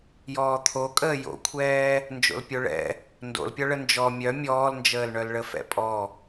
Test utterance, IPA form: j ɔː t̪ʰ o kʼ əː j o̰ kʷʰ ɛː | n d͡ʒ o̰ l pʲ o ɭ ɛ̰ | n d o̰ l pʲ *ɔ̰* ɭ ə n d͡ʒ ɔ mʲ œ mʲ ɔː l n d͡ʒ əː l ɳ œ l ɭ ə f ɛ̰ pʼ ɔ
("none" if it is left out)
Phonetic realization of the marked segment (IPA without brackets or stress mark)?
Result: ɔ